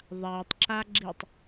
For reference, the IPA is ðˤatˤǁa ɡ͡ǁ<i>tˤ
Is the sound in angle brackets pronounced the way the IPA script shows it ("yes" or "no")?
yes